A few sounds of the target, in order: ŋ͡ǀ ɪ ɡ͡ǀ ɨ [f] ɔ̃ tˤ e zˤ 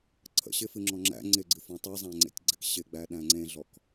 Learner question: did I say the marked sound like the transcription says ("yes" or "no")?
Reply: yes